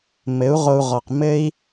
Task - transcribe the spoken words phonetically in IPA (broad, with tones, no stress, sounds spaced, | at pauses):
m ɘ˨˦ u̯ ʁ o˧ u̯ ʁ ɔ˨ q m ɘ˦ i̯